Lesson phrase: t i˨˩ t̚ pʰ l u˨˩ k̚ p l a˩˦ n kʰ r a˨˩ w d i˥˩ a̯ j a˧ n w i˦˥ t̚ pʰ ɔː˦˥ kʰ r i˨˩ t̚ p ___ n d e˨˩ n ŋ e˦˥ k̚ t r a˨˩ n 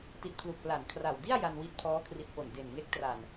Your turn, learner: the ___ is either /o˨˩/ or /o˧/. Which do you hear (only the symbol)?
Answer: o˨˩